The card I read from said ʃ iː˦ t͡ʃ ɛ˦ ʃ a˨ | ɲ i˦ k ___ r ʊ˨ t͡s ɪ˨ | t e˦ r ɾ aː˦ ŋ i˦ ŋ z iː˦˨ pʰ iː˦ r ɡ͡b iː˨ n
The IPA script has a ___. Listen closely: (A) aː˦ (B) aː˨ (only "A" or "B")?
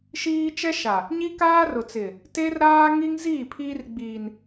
A